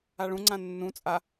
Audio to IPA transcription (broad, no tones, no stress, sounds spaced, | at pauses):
a ɭ ũ ŋ͡ǀ ã nː ũ t͡sʼ a